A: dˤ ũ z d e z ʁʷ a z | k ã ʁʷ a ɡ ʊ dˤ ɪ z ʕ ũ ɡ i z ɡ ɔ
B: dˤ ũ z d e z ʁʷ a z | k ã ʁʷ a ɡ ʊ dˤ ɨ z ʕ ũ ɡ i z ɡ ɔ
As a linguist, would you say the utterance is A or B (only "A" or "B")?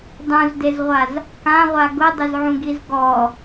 A